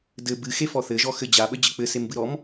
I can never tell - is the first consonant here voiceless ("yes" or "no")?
no